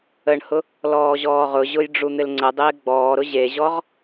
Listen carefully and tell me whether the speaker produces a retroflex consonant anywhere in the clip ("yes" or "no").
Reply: yes